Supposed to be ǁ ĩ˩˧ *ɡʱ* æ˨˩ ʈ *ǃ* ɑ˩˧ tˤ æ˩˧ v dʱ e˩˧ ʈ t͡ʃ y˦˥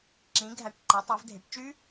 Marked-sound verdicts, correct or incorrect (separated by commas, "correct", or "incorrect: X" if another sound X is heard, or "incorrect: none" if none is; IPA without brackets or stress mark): correct, correct